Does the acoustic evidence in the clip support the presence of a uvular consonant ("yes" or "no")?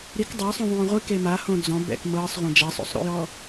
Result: yes